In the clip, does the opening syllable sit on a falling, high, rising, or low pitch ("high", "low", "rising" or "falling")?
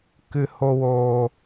low